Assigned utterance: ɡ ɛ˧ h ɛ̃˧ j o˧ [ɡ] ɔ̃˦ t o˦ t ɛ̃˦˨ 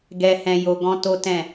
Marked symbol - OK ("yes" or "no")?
yes